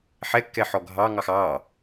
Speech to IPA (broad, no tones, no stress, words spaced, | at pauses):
ħɛkːɛħɔ ɡʱɑŋɑx ɑ